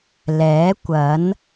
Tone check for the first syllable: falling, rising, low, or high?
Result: rising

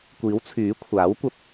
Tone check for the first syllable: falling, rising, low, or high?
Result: rising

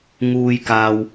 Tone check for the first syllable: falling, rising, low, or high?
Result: high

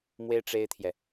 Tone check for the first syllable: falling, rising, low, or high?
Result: high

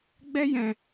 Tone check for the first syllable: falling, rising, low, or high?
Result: high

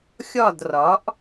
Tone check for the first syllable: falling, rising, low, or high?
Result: falling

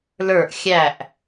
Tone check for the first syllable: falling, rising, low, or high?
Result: falling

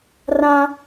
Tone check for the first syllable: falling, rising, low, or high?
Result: high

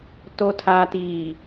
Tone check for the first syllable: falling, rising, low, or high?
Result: low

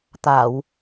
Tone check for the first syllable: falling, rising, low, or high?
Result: low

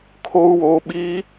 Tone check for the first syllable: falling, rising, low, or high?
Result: low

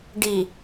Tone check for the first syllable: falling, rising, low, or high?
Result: low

